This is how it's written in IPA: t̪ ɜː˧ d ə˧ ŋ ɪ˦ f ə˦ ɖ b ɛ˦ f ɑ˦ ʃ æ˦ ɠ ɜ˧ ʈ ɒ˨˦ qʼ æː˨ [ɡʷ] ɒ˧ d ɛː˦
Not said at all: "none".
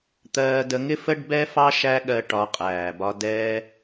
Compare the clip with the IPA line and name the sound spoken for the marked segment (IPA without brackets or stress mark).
b